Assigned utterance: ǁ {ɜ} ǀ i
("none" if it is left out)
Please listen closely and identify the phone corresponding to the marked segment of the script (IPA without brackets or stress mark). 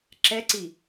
ɛ